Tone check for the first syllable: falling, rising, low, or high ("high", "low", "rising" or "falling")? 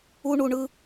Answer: high